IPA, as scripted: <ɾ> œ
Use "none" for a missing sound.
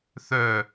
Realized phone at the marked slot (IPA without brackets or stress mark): θ